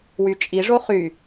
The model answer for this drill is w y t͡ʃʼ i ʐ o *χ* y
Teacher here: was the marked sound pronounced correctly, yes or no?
yes